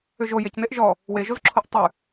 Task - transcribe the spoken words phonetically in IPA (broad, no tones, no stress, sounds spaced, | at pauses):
ʏ ʒ o j e c n e ʔ ʒ ɔ | w e ʒ o z ǁʰ o ʔ tˤ ʉ